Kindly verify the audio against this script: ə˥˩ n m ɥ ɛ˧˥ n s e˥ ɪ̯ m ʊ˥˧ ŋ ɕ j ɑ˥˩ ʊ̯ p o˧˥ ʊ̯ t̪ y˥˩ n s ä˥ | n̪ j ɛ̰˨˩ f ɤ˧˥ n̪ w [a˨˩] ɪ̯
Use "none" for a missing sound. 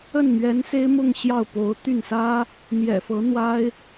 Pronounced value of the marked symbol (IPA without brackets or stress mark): a˥